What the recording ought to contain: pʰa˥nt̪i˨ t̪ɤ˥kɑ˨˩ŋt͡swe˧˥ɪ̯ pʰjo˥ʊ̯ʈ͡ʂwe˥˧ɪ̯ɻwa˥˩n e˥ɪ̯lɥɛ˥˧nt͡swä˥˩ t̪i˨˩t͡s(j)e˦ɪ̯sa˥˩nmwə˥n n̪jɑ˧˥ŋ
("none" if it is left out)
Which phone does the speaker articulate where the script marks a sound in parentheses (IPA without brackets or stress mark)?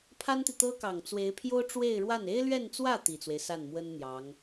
w